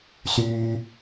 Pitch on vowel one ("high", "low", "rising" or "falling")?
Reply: high